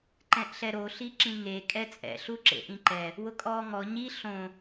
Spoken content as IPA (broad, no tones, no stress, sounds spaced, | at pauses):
ǃ ɛ̃ ʔ ɬ ɛ ɾ o ɬ i ǁ ĩ ŋ e kʼ ɛ t͡sʼ ɛ̰ ɬ u ǁ ḛ ʔ ĩ ǃ ɛ | w ʊ kʼ ɔː ŋ ɔ ɲ i ɬ õ